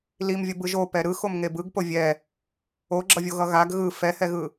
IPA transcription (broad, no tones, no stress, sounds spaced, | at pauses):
l i m vʲ ʌ b ɯ ʒ o p ɛ ɾ ɯ x o m ŋ e b ɯ ɡ p o vʲ ɛ | o ɡ͡ǁ ʌ vʲ o ɣ ʌ ɣ a ɡ ɣ ɯ f ɛ h ɛ ɣ ɯ